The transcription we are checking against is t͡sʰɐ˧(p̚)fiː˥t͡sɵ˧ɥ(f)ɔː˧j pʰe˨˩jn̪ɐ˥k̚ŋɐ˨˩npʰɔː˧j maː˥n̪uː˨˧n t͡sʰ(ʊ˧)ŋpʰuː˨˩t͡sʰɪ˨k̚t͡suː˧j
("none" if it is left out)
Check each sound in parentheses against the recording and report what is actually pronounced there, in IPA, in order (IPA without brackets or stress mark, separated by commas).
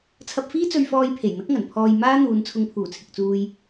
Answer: p̚, f, ʊ˧